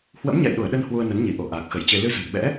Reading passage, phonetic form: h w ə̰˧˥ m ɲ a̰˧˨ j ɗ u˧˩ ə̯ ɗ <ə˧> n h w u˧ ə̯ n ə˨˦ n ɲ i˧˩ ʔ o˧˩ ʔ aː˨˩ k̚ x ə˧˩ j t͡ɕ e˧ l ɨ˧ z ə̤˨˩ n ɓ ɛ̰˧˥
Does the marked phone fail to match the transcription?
no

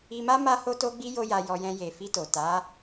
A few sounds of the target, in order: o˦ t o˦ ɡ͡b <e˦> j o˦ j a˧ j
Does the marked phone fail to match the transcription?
yes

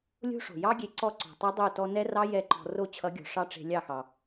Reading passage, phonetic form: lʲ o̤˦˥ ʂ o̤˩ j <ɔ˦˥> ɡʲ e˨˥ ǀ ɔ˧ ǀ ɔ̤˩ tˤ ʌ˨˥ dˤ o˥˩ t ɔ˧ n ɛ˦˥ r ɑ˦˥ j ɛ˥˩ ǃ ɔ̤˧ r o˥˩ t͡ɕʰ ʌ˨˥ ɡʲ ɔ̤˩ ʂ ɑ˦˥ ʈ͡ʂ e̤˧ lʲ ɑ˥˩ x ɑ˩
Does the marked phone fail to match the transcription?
yes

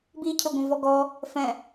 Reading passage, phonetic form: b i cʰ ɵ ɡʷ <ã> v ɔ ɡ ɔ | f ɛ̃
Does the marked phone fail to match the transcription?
yes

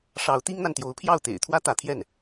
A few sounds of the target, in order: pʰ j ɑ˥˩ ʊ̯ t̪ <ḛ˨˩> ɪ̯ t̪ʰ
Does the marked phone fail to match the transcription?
no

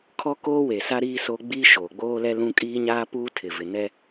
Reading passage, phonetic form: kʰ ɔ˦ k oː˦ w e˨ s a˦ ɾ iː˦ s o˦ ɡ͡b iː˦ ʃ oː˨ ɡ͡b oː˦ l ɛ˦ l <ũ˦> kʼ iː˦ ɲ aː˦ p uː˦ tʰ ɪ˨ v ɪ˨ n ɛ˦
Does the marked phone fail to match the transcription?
no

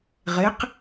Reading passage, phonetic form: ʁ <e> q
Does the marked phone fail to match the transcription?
no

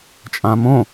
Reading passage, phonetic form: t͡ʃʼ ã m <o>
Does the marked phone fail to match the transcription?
yes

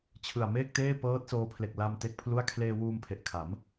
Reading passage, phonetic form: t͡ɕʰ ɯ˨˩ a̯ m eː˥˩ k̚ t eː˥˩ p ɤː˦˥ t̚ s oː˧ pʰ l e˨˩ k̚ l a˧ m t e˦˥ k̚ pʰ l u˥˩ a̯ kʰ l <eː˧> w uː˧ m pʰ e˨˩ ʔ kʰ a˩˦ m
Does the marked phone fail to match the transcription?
no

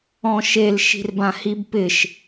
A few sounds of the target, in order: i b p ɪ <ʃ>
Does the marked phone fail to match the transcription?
no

